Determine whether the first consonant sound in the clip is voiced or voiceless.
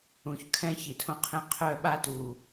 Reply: voiceless